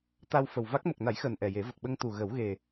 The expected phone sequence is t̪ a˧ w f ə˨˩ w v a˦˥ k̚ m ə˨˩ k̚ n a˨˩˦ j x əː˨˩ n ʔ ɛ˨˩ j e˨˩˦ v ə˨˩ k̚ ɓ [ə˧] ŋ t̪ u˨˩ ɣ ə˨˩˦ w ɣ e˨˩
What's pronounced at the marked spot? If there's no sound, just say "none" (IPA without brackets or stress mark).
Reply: ə˧